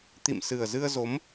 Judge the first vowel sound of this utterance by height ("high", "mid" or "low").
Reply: high